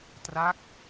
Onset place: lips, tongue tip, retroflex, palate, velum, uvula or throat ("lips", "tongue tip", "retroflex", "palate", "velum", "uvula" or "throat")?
tongue tip